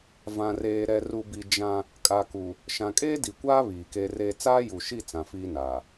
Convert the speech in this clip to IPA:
vã˨reː˨ ɾɛ˨ru˨bi˨ d͡ʒã˦ | kʼa˨ku˨ | ʃã˨kʼeː˦di˨kʷaː˦ βiː˨ke˦reː˦ t͡saː˦ju˨ʃi˦˨ t͡sã˨fiː˦naː˨

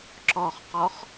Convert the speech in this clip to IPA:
ǁɔχqɔχ

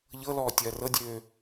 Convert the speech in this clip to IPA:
ʎɤlɔː tʲɐːrɤdʲøː

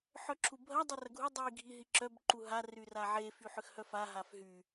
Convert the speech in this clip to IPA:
ħœǁʰubʱɐ dˤerɐɡʱu dˤi ɡʱiɦiǁœb ǃuɦa ryraʕe fyħʏxhœfa ɦafɦy

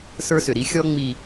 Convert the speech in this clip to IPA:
sə˞˦sʏ˨ɾi˦ xʲɔ˦ŋ͡mi˨

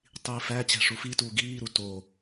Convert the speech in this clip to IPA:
tˤiːfæ t͡ɕæ̤ʂufituː ɡiːɾu to

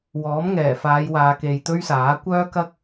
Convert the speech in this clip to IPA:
wɔː˨˥mŋɛː˨˩faː˨˧j waː˨ke˨j t̪ɵ˥ɥsaː˨˥ kʷœː˥kɐ˥k̚

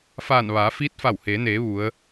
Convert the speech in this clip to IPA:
faː˧˩nʋaː˩˧fiː˧˥t̚ fa˧˩wheː˩˧neː˩˧ ʋu˩˧ə̯

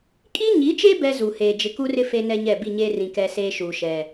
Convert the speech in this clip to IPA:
kʼi˦ɲi˨˦t͡ʃe˦ bɛ˦zu˨heː˨ d͡ʒɪ˨ku˦rɪ˦ fe˦nɛ˦ɲɛ˦˨ bi˦˨ɲeː˦rĩ˨ kɛ˦seː˦ʃuː˨ ʃɛ˨

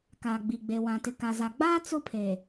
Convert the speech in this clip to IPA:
kaː˨ɡ͡bi˨ɡ͡be˨ wã˨tɪ˨ ka˨za˨ ɡ͡baː˦ t͡sʊ˦pʰe˨

